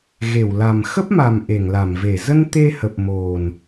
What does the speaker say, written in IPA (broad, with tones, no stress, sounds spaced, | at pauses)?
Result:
ɣ e˧˩ w l a˨˩ m x ə˦˥ p̚ m a˨˩ m ʔ e˧˩ ŋ l a˧˩ m v e˧˩ z ə˧ n t̪ e˧ h ə˨˩ p̚ m o˨˩ n